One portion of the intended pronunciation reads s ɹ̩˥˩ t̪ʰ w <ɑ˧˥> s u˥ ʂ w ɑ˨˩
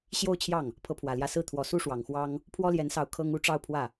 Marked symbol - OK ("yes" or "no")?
no